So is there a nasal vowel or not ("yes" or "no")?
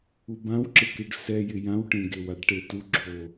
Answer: yes